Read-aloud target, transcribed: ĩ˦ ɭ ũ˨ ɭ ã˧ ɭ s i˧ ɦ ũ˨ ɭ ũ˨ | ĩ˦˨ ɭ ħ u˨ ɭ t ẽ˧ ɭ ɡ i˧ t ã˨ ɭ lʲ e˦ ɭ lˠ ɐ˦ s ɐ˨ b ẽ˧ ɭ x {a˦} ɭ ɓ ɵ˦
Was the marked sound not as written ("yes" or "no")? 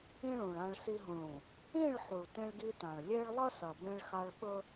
yes